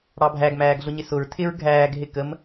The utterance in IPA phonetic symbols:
ɽ ɑ bʱ æ ɡ m æː ɡ ɮ ʊ ɲ ɪ s ʊ ɹ tʰ ɪ ɹ ɡʱ æː ɡ ɦ ɪ k ə m

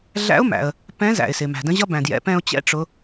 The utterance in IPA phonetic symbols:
ɮ æ̰˧˥ ʊ̯ m æ̰˩ ə̯ | p ɛ̃˧˥ z æ̰˩ ɪ̯ s ɪ˩ m æ̤˩ d ə̃˧˥ ʑ ʌ˥ b æ̃˩ d j ɛ̰˩˧ p ɛ̃˧ ʊ̯ t͡ɕ ɛ̰˧˥ ʈ͡ʂ ʊ˩˧

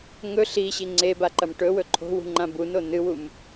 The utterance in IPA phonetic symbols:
ŋ ɵ ɬ i ɕ i ŋ͡ǀ e b a ǃ ɐ m ʈ ɵ w ɵ ǃʰ o̤ w ṳ ŋ͡ǃ ã b u n o n ɨ w u m

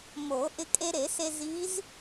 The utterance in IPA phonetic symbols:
m o˨˩˦ ʔ ɪ˧ kʼ e˧ ɾ e˨˩˦ s e˧ z i˧˥ z

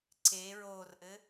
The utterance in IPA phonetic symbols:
ǀ e ɹ o r ʔ ɘ

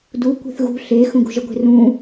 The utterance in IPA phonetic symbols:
d u kʷ e̤ θ ɣ ṳ ɬ e x ũ ɡ ṳ ʒ ə ɡʷ e̤ r ũ

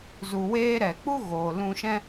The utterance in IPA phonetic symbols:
z u˨ w eː˧ ɾ ɛ˨ k͡p u˦ ɣ oː˨ l ũ˧ ʃ ɛ̃˦

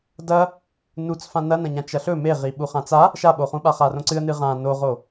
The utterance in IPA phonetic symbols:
d ɐ | n u t͡s f ã n ɐ n ɐ̃ ɲ ã t͡ʃ ɐ ɬ ɵ m e ʁ i ɓ u χ ã t͡s a | ʃ a ɓ o χ ũ ɓ a χ a r õ ǀ ɨ ə̯ n ɨ ʁ ã n o ʁ o

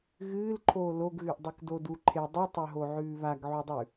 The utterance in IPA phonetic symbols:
ɣ ɨː l ǃʰ oː l o ɡ ɣ ʉ ʔ dˤ ʉ k d o d u ǃʰ e dˤ u tˤ ɵ ɦ o ʕ ʉː β a ɡ ʕ u dˤ ʉ

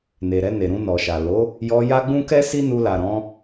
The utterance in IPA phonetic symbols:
n e˨ ɾ ɛ˧ n e˨ ɾ ũ˧ n ɔ˨ ʃ a˨ l o˨˦ | j ɔ˧ j a˦ ɡ͡b ũ˦ k ɛ˦ s i˦ n u˧ l a˨ ɾ ɔ̃˨˦

